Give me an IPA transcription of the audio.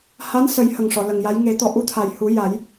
h aː˧˥ n s ə˨˩˦ j h ə˨˩ ŋ ʂ ɔ˨˩˨ l ə˨˩ ŋ j a˧˥ j ŋ e˨˩˦ t̪ ɔ˨˩ ʔ u˧ t̪ʰ a˨˩ j h u˨˩˦ j a˨˩˦ j

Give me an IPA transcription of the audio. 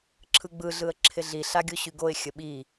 ǁʰ ɯ ɡ͡b ɯ ɮ ɯ ə̯ ǁʰ ɪ ɮ i ɬ a ɡʲ o ɕ y ɡ o ɪ̯ xʲ ə ɓ i

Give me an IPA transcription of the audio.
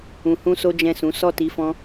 ũ˨ h ũ˧ s o˦ d͡ʒ ɛ̃˦˨ s ũ˨˦ s ɔ˦˨ t i˨˦ f ɔ̃˧

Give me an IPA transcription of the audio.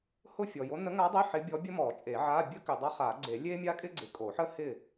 h ʊ˥˨ fʲ ɔ˨ j o˧˥ n ə˧˥ ŋ a˧˥ dˤ e˧˥˧ ħ ɪ˧˥ bʲ ɔ˧˥ bʲ ə˥ m ɔ˨˩˦ t͡ʃʼ e˨˩˦ ʕ a˧˥˧ bʲ ə˥ k ʏ˨ dˤ a˥ χ a˨˩˦ ɡ͡ǀ e˨˩˦ lʲ e˥ mʲ a˥ kʼ ɪ˥ ɡ͡ǀ ɪ˨ kʼ o˨˩˦ ħ ə˥ h ɪ˥˨

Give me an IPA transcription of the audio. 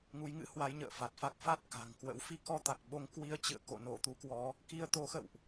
ŋ u˨˦ j ŋ ɨ̰˧˥ h w a˨˦ j ɲ ə̰ː˧˨ f a˨˩ t̚ f a˦˥ k̚ f a˦˥ t̚ k a̤˨˩ ŋ k w ə̰˧˥ w f i˧ k ɔ˧ t̪ a˨˩ k̚ ɓ o˧ ŋ k w i˧ ə̯ t͡ɕ ɨ̰˧˨ ə̯ k o̰˧˨ n o˧˩ t̪ u˨˦ k w ɔ˨˦ | k i˧ ə̯ t̪ o˨˦ x ə̰˧˨ w ʔ

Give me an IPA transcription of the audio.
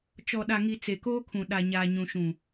t͡ʃ ɔ˨ ɗ a˨ ŋ i˨ t͡s e˨ k oː˦ kʰ ũ˨ ɗ a˨ ɲ aː˨ ɲ ũ˨ ʃ ũ˨

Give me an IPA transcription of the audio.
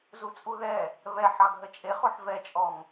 z u t͡sʼ u ð ɛ | β ɛ ħ ɑ ɡ ɦ ə t͡ʃʼ e χ o ħ v ɛ t͡ʃʼ ɔ ŋ

